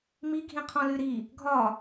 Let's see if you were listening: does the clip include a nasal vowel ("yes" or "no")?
yes